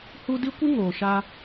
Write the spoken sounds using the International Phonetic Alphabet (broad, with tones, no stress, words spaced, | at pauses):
hu˧ di˦kʷɨ˦ŋoː˨ ʃa˧